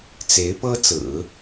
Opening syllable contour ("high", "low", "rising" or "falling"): rising